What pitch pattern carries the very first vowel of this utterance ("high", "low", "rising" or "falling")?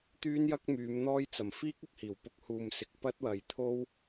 high